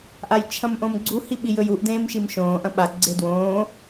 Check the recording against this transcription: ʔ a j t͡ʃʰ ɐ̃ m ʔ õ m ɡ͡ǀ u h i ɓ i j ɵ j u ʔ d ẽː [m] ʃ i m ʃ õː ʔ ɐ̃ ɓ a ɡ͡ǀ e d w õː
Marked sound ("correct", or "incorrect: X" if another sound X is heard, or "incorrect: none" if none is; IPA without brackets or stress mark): correct